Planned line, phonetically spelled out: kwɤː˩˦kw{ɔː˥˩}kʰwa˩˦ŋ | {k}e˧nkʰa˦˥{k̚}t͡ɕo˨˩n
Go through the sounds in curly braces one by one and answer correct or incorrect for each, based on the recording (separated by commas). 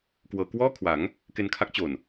correct, correct, correct